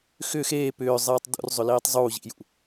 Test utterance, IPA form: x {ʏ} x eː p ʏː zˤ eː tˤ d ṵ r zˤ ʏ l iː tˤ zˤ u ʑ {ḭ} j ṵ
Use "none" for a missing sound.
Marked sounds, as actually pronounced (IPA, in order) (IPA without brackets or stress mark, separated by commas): ʏ, ḭ